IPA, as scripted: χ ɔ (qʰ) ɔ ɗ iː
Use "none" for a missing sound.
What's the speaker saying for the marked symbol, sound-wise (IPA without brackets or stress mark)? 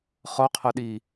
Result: qʰ